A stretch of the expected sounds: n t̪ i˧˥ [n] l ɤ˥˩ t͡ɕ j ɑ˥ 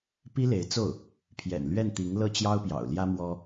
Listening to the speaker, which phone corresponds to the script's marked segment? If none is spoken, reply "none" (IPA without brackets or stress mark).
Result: ŋ